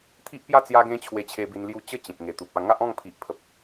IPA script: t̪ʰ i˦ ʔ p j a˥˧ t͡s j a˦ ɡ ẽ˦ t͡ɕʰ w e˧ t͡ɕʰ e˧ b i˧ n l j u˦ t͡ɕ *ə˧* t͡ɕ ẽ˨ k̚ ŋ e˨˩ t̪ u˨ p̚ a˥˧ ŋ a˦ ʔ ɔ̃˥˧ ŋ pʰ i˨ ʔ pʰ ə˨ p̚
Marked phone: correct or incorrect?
incorrect